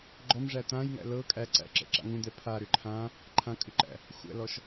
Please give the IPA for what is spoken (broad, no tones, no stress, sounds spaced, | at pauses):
ɡ͡ǃ ɔ m ʐ æ t̪ ã j ŋ æ̰ l ɤ kʼ æ ǀ æ̰ ǁ ɛ̰ ǁ a̰ ŋ ũ d̪ ɛ pʰ a ɾ ʏ ǃʰ ã | ǃʰ ã kʼ ʏ ǃ æ̰ | xʷ æ̰ l ɔ ʃ